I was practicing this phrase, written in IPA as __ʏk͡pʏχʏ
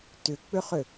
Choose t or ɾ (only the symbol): t